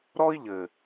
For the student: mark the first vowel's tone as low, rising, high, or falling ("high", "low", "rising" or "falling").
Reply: high